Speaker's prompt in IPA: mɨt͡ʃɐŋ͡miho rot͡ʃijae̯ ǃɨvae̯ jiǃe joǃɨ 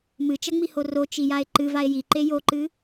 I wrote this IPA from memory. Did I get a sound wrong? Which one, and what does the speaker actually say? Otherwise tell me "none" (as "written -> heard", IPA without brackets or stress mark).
none